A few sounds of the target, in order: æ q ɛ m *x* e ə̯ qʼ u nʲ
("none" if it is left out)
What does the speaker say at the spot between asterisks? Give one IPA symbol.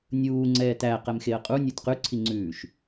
x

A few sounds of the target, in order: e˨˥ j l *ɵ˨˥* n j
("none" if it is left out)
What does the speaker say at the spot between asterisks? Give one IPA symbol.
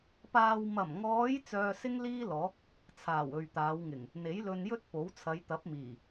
ɵ˧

